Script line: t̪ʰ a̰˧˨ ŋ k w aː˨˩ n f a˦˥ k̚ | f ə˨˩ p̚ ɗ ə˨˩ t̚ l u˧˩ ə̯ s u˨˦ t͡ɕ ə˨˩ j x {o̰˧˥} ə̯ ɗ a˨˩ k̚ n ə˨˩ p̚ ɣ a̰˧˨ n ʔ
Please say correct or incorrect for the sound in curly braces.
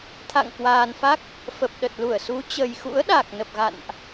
incorrect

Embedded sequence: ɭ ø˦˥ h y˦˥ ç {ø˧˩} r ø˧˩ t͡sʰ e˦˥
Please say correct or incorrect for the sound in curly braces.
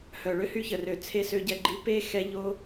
incorrect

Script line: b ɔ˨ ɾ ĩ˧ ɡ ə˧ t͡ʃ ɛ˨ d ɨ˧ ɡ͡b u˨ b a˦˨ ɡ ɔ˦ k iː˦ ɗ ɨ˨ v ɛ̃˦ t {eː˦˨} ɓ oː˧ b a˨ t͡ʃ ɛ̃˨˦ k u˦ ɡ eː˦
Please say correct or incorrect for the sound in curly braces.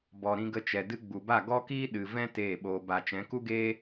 correct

